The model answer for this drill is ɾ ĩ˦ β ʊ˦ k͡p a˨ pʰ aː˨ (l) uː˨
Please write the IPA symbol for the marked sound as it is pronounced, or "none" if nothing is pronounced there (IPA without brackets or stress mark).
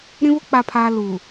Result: l